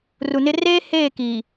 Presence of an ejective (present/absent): absent